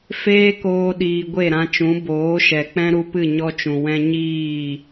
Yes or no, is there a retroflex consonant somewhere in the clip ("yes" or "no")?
no